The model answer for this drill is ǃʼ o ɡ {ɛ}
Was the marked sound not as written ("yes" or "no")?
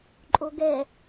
no